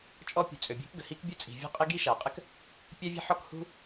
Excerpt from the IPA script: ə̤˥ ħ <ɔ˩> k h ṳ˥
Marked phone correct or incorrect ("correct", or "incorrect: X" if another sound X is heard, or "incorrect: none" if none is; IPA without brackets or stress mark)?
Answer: incorrect: ɔ˥